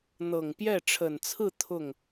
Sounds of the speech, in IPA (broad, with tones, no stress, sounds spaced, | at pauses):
n̪ ɤ˨˩ ŋ p j ɛ˥˩ ʈ͡ʂʰ ə˨˩ n t͡sʰ ɹ̩˥˧ t̪ʰ ʊ˥˩ ŋ